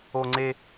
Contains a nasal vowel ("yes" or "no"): no